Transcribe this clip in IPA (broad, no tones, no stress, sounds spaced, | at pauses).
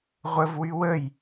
ʁʷ ə v w y w ə j